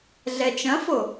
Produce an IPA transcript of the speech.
ɮ ɛ t͡ʃ ɐ̃ f o

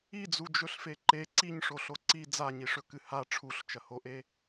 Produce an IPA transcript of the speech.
i d͡z u d͡ʒ ɵ ɬ f e ǃ e ǀ i ɲ ʂ o ɬ o ǀ i d͡z a ɲ i ʂ ɵ k ɨ h a ʈ͡ʂʰ u ɬ t͡ʃ ɐ h o ʔ e

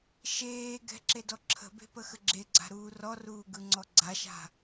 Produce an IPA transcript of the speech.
ʃ eː ɡ ɛ̤ ǁ e d ɔ ǁʰ ə̤ b e̤ p ə x ə ɡ͡ǁ e ɡ͡ǀ a̤ ɾ uː r ɔ r uː ɡ ɯ ŋ͡ǀ ɔ ɡ͡ǀ a ʃ a̤

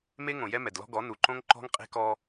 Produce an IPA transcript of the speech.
m e˦ ŋ õ˨ j ɛ˦ m ɛ˨ d l ɔ̤˦ ɡ ɔ˨˦ n u˨ ǃ õ˦ ŋ ǃ ɔ̤˦ ŋ qʼ e̤˦ k ɔ˦

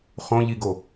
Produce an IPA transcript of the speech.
χ õ ʎ i ɡ o

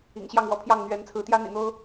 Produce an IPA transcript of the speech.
ḭ˨˩ ŋ ɕ j ɑ˥˨ ŋ w ɔ̰˨˩ pʰ j ɑ˥˨ ŋ n̪ ɥ ɛ˨˦ n t͡sʰ ɹ̩˨˦ t̪ j ä˦ n̪ ḭ˨˩ n̪ o˦ ʊ̯

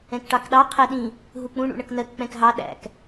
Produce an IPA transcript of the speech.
ɛ̃ k ʈ ɑ k ɗ ɑ qʰ ɛ ɗ ĩ | ɦ u k͡p ũ ɳ ṵ ɳ ʌ k n ɜ k k͡p ɛ̃ k ɦ ɑ ɗ æ̰ k

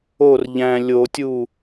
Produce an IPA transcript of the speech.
o r ʎ æ̃ lʲ o tʲ u

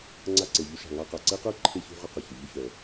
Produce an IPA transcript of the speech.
ŋ͡ǀ a˧ ǀ e˩ ʎ u˧ ʃ a̤˩ ŋ a˧ q a˩ ǀ e˥ q ə˞˥ ǃʰ e˧ ç ṳ˧ ʁ ʏ˧ q ʏ˩ ç ʊ˩ ʎ ʏ˧ ç œ˩

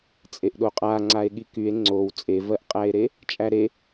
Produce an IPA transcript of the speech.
t͡sʼ e ʔ ɗ o qʼ a ŋ͡ǀ a e̯ ɠ i k y e̯ ŋ͡ǀ o w t͡sʼ e v ɜ ʔ qʼ æ e̯ ɾ e | t͡ʃʼ æ ɾ e

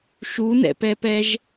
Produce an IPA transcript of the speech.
ʃ u n ɛ̰ p ɛ p ɛ ʒ

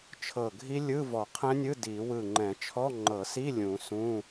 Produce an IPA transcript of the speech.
t͡ʃʰ ɤ˧˩ ɡʱ i˦˥ lʲ ɯ˧˥˧ v ɔ˨˩˦ qʰ ɛ̃˦˥ nʲ ɯ˧˥˧ d i˨˩˦ w ɯ˧˩ ŋ͡ǃ ɛ̃˨˩˦ t͡ʃʰ ɔ˧˥˧ ŋ͡ǃ ɤ˨˩˦ s i˧˥˧ lʲ ũ˨˩˦ s ũ˧˥˧

